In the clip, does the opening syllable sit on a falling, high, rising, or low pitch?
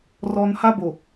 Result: high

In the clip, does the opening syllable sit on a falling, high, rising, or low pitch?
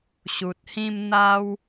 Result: low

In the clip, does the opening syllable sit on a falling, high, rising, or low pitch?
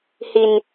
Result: low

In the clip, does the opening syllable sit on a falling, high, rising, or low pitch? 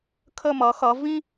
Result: falling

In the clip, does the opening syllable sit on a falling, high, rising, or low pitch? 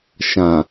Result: low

